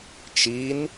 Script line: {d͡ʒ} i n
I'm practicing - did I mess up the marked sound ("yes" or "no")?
yes